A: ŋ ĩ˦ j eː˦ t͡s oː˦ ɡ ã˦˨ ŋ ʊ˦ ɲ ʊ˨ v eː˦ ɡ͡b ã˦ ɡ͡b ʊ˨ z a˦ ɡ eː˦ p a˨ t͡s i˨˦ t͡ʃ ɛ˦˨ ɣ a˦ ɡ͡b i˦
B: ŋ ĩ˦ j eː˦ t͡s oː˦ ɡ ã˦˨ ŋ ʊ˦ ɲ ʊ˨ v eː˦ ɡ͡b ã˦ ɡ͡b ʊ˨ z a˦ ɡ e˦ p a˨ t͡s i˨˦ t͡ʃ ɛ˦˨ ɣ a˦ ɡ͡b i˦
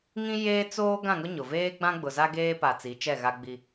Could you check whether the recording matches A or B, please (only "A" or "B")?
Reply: A